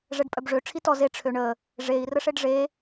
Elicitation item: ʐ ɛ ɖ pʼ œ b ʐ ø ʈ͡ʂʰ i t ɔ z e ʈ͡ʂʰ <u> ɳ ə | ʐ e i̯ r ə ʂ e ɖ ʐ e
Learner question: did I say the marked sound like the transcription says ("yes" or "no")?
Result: no